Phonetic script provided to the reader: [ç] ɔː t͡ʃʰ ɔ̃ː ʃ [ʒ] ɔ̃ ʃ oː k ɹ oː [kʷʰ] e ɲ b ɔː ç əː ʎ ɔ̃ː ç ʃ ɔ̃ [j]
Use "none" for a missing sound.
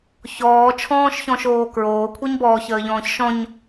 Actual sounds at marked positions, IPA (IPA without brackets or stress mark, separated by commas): ç, ç, kʷʰ, ɲ